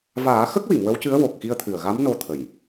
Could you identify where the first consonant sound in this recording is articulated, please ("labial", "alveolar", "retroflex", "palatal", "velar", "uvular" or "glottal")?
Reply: labial